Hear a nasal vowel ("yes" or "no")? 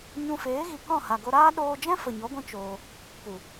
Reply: yes